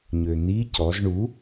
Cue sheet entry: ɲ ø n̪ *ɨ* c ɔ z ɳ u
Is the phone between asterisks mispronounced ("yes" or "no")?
yes